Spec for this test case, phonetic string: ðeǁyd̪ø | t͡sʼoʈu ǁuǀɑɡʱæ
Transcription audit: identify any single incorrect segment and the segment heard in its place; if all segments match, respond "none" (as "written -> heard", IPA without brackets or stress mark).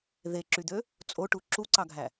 none